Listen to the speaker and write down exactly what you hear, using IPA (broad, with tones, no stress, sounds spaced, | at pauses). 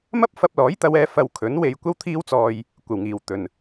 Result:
m ɐ˥ p̚ f ɐ˧ p̚ l ɔː˨˥ j t̪ ɐ˨˧ w ɛː˧ f ɐ˧ w kʰ ɵ˨˥ n w e˨˧ j kʷ ɐ˥ w t̪ʰ iː˥ w t͡s ɔː˧ j | kʷ ɐ˨˩ w ŋ iː˨˩ w t̪ ɵ˨ n